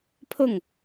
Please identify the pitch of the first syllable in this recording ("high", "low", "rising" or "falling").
falling